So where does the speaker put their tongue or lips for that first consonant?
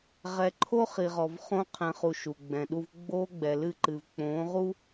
uvula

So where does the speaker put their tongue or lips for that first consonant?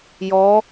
palate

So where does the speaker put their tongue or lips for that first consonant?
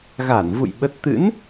velum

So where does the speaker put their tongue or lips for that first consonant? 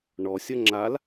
retroflex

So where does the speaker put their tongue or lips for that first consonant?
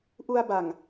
throat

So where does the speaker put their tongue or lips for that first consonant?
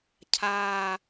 palate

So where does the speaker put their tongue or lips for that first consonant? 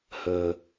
throat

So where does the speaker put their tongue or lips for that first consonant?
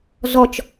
tongue tip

